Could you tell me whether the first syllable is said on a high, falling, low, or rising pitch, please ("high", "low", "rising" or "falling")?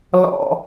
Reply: low